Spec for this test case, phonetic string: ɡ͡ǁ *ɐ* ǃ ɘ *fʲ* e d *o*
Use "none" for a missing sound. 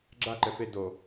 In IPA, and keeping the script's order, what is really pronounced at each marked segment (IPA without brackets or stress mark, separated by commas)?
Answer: a, f, o